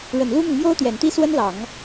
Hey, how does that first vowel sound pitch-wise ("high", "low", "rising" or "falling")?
low